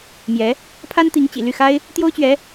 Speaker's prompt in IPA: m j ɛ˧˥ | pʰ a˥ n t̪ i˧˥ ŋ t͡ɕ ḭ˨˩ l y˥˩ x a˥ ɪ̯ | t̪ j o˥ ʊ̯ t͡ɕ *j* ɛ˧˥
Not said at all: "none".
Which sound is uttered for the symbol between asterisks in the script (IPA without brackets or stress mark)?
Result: ɥ